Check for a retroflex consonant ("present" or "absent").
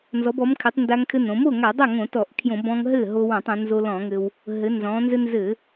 absent